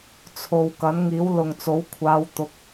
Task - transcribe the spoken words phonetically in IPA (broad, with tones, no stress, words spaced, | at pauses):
t͡sʰo˨w kɐ˨˥nŋiː˨˥wlʊ˨ŋt͡so˨˥w kʷʰaː˨˧wt̪ʊ˨˥k̚